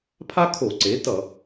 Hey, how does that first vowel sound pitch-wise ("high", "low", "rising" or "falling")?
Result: high